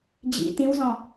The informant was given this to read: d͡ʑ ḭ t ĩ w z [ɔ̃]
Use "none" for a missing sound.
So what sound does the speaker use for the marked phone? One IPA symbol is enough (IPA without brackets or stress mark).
ɔ̃